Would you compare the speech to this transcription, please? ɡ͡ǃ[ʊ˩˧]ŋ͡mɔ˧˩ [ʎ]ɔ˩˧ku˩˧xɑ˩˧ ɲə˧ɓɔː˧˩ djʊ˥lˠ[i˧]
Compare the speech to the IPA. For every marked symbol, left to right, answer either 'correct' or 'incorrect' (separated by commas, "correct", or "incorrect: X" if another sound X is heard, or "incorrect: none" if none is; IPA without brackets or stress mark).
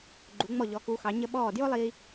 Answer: incorrect: u˩˧, correct, incorrect: iː˧